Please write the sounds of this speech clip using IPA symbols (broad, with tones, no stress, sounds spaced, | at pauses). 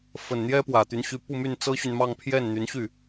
f ə˨˩ n n̪ j ɛ˥ p w ä˨˩ t̪ y˧˥ n ɕ y˧˥ p u˥˧ m y˥˩ n t͡s ɤ˥ ɕ y˨ n m ɑ˥˧ ŋ pʰ j ɛ˥˩ n n̪ y˧˥ n ɕ y˥˩